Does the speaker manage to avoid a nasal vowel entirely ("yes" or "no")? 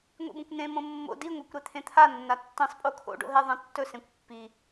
no